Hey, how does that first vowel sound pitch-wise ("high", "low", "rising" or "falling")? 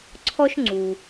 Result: high